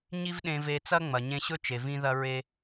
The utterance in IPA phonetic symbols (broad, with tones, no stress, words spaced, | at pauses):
ɲi˥vɗẽ˧ve˧t͡sɐ˥ ŋ͡mɐ˩ɲẽ˧ɕɵ˥t͡ʃe˩ vĩ˥ðɐ˥ɹe˥